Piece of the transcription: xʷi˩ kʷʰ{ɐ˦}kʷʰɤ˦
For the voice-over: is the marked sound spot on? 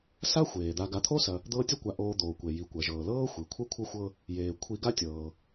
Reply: no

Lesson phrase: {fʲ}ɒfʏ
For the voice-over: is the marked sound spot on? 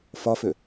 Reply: no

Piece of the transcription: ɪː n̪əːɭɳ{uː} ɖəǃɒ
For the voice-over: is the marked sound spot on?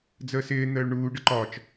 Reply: yes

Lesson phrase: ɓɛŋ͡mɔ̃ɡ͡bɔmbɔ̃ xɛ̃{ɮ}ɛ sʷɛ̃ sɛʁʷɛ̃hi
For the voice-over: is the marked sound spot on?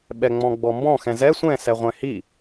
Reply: no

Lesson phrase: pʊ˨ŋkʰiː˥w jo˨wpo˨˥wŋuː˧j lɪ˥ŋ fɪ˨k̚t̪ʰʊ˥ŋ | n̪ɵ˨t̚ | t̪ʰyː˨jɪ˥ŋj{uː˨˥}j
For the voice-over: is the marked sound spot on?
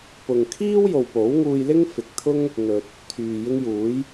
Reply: yes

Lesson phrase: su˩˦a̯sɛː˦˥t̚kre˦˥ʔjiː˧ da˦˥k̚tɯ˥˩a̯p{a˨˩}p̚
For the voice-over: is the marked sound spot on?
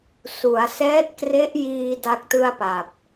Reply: yes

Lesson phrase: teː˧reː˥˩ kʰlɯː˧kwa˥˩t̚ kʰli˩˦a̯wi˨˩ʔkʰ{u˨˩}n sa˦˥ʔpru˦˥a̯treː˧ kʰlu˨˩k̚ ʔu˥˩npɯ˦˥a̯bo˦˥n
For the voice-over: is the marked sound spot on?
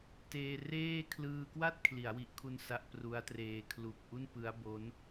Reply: no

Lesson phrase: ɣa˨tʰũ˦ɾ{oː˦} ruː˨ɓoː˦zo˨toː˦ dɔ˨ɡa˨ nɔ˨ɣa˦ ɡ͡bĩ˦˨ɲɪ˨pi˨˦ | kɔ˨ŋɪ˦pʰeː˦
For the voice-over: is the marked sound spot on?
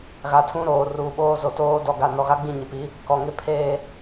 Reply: no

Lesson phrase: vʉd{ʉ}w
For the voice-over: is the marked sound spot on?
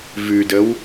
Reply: no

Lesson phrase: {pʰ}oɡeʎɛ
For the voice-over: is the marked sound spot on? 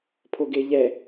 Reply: yes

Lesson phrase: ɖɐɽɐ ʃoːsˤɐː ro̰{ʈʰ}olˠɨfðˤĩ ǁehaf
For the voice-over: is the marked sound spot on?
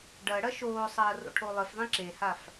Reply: yes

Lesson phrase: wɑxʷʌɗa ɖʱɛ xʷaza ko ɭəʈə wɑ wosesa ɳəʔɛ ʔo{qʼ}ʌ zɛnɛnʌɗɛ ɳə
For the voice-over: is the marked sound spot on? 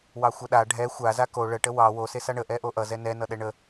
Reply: no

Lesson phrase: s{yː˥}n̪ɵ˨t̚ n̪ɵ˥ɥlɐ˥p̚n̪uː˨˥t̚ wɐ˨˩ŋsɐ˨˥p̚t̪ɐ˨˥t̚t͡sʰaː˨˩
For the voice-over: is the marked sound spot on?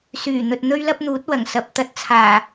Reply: no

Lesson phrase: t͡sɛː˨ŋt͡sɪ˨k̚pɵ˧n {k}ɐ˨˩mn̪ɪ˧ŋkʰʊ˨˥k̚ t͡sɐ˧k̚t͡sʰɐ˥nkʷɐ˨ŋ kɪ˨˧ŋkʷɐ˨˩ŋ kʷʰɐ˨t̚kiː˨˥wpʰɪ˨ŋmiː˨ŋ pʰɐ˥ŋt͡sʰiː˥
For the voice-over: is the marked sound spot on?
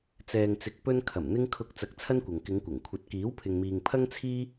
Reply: no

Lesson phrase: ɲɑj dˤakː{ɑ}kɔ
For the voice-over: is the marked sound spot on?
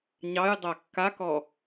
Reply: no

